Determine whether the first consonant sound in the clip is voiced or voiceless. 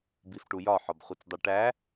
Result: voiced